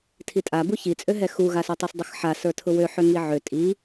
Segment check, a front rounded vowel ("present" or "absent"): present